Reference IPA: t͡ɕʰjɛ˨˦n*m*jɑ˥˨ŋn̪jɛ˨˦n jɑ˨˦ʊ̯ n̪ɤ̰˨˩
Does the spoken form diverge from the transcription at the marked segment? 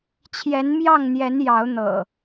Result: no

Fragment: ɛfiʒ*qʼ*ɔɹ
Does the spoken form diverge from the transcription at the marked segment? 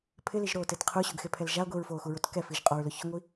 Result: no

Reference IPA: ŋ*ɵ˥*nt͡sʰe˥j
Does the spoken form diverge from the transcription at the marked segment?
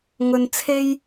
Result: yes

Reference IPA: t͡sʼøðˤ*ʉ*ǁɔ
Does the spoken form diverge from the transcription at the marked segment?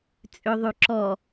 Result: no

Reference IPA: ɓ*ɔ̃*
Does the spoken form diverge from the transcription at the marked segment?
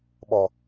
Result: yes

